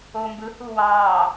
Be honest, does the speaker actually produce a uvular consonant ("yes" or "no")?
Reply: no